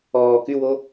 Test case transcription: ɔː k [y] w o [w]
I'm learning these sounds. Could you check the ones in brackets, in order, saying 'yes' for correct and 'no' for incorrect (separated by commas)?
yes, no